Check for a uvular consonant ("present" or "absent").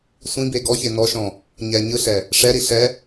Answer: absent